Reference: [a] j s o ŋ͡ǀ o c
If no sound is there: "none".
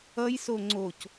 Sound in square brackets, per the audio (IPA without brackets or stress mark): ʌ